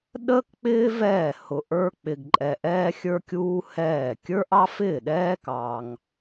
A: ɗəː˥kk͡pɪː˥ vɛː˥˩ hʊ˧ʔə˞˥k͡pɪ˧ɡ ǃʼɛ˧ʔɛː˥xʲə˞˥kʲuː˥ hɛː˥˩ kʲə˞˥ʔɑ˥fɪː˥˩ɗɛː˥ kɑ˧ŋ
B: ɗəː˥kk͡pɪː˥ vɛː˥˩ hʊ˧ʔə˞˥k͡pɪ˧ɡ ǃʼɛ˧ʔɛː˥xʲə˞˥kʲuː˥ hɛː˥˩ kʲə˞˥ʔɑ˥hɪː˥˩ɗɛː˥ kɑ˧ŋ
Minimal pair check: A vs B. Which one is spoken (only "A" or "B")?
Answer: A